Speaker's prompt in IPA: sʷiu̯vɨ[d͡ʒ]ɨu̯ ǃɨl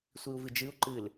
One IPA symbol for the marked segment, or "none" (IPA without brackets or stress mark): d͡ʒ